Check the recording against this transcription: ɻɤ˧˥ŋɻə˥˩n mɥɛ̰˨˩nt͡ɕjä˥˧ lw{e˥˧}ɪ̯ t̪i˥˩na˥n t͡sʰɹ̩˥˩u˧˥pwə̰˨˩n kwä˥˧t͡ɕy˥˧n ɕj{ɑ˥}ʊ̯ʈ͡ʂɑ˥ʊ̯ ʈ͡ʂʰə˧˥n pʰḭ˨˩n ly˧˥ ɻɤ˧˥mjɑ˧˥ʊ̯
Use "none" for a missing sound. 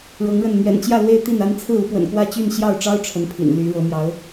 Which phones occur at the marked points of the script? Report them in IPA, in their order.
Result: e˥˧, ɑ˥˩

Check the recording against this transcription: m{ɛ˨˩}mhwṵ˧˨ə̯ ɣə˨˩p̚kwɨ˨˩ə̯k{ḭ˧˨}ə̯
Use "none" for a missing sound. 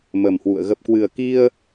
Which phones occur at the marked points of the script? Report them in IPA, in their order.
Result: ə˨˩, i˧

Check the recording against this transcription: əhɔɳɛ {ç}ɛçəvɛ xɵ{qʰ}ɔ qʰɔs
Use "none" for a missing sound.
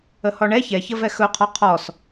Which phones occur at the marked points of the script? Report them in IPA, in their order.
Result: ç, qʰ

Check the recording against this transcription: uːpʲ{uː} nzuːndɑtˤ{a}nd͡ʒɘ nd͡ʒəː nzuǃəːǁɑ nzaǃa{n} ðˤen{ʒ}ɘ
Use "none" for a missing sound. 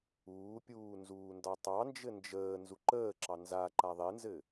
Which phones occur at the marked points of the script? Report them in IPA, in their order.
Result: uː, ɑ, none, z

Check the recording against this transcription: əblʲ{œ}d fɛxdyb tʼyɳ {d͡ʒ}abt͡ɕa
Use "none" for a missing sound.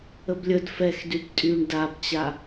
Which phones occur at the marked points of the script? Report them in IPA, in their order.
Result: ə, d

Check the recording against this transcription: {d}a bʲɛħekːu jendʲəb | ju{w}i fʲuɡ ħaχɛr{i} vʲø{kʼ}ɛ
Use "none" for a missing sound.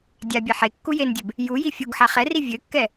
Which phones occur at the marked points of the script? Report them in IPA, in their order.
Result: dʲ, j, i, kː

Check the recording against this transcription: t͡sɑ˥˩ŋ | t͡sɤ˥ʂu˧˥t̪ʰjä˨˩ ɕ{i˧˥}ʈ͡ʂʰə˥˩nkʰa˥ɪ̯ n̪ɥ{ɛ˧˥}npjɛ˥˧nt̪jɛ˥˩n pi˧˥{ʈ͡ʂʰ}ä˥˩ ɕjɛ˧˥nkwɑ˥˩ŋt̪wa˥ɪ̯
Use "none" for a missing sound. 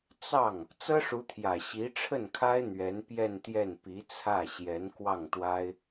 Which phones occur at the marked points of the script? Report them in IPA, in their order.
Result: i˧˥, ɛ˧˥, t͡sʰ

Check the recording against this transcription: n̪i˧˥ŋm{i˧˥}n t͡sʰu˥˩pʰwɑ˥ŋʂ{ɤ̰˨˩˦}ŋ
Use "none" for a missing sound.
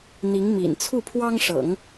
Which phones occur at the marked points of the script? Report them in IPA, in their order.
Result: ḭ˨˩, ɤ̰˨˩˦

